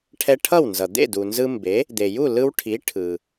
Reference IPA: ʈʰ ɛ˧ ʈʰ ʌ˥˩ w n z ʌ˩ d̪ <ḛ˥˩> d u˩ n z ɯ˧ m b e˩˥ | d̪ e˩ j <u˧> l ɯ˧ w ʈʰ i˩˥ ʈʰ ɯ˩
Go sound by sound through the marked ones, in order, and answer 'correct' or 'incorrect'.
correct, incorrect

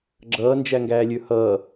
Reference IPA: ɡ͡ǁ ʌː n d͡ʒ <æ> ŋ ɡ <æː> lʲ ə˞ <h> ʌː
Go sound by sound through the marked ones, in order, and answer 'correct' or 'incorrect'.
correct, correct, correct

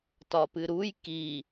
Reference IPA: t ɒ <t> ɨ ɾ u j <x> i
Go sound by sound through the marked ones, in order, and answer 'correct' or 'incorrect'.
incorrect, incorrect

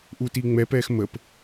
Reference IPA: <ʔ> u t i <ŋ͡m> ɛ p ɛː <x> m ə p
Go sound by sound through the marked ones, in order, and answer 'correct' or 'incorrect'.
correct, correct, correct

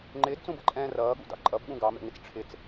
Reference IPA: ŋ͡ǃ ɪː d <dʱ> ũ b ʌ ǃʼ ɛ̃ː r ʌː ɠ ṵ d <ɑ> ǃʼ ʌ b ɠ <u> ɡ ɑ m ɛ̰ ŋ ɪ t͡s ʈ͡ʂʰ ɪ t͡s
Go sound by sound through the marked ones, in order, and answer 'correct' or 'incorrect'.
incorrect, incorrect, incorrect

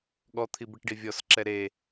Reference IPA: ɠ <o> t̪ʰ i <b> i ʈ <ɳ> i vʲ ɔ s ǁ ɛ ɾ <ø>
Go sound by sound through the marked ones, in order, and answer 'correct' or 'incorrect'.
incorrect, correct, incorrect, incorrect

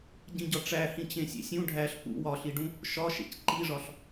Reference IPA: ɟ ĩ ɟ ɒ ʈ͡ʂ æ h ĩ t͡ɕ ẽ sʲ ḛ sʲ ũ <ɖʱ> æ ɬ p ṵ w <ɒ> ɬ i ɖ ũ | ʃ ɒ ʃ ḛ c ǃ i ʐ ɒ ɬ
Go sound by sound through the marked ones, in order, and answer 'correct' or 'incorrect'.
correct, correct

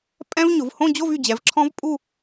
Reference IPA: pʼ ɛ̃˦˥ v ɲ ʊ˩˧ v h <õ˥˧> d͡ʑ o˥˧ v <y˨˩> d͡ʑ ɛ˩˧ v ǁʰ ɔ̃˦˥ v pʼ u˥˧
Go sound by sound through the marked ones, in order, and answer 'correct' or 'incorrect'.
correct, correct

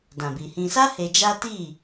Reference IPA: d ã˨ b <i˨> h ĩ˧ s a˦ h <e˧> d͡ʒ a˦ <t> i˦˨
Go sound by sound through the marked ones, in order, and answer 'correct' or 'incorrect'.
correct, correct, correct

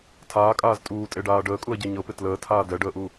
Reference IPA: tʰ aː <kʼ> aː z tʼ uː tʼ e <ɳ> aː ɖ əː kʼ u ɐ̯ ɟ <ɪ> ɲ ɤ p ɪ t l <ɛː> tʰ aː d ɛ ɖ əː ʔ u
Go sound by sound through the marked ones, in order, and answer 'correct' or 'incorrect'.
correct, incorrect, incorrect, incorrect

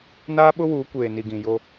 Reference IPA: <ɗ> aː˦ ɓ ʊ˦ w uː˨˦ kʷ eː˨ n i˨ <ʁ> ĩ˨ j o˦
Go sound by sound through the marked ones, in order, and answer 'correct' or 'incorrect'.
incorrect, incorrect

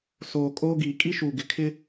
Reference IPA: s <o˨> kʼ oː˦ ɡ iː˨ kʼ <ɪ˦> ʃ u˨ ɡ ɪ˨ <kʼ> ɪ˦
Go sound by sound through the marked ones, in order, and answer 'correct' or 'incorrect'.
incorrect, incorrect, incorrect

